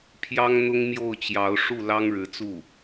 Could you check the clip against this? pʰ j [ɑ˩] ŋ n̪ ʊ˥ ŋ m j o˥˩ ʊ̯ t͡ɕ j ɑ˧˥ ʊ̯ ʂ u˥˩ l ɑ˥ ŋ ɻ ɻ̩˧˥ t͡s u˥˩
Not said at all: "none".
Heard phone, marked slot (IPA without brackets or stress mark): ɑ˥